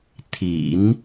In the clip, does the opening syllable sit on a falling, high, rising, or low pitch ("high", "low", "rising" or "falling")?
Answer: low